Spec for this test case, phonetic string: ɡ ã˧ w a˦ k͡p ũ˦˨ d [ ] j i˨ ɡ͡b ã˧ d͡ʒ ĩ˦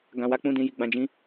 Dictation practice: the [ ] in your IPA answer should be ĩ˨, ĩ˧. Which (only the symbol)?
ĩ˧